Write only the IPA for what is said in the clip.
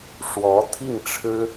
ʂwɔ˧˥t̪ʰi˥˩ŋʈ͡ʂʰɻ̩˥

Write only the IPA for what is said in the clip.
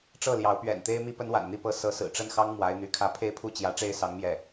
ʈ͡ʂɤ˥˩ljɑ˧˥ʊ̯ pɥɛ̰˨˩nt̪e˥ɪ̯ mi˥˩pə˥nwa̰˨˩nn̪i˥˩ pɤ˥ sɤ˧˥sɹ̩˨˩ ʈ͡ʂə˥˩nxɑ˥ŋ mwa˧˥ɪ̯n̪y˧˥kʰä˥ pʰe˥˧ɪ̯pʰu˥˧ t͡ɕjä˥˧ ʈ͡ʂe˥˩ɪ̯sɑ˧˥ŋ mjɛ˥˩

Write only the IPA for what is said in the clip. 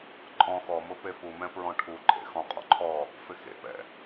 ǃʼɔ̃ xɔmʊ pefumɛ̃ pɹɔ̃ʈʰuǃʼḛ xɔ̃qʼɔ̰ ǃʰɔ | fɪxḛpɛ̰

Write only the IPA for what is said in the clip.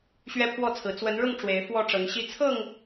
ɕɥɛ˦pʰwɔ˥˨t͡sʰɹ̩˨˦ t͡swə˨˦nɻʊ˥˨ŋ ʈ͡ʂwe˨˦ɪ̯ fwɔ˥˨ʈ͡ʂɤ˨˦ŋɕi˦ t͡sʰɤ˥˨ŋ

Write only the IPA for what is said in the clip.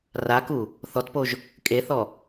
raku | θɔtpoʒ | kʼeθɔ

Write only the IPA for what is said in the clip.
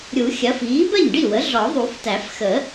ɾʲu˨˩˦xʲɐ˩˥f iː˩˥bɜ˥˩ɲɖi˥˩wə˩˥ ɮɔ˨˩˦ðˤu˨˩˦ftæ˨˩˦f xə˨˩˦

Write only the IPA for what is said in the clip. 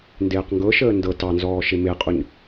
ndeːqŋɡɤʃəː ndɤ tɑnzɔː ʃemeqʼuɲ

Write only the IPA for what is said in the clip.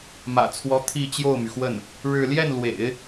mä̰˨˩t͡sʰwɔ˧˥ t̪ʰi˥˧ t͡ɕjo˥˩ʊ̯my˩xwə˥˩n | ɻɻ̩˥˧ ljɛ˥˩nlwḛ˨˩˦ɪ̯

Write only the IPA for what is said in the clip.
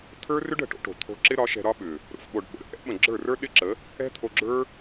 t̪ʰə˞˦rʏ˦ɖ ə̤˨ʈo̰˦ʈo̤˨ t̪ʰo̤˧ǁɪ˦ɾɒ˨˦ ʃɛ̤˧ɾɒ˦ɓʏ˨ | ɾo̰˨fɓo˨ɖ ɓə̰˨ɾə̰˦ ʔɛ̰˦ɓə̃˨ ɡ͡ǁə˞˦˨rə˞˦ ɗɪ˦ǁə˨˦ | ɛ̤˦t̪ʰo˧ɡ͡ǁə˞˦

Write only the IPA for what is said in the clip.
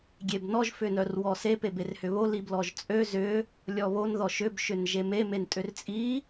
ɡʲebnɔʒ fʏnœrwɔse peberhʏβo liblɔʒt͡sʼø zʏ | lʲɔβon ðɔʃʏb ʃʏnʒeme mentʼʏrt͡sʼi

